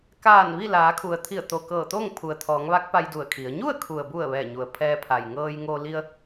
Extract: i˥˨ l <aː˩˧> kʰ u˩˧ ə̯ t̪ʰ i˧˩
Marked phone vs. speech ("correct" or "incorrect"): correct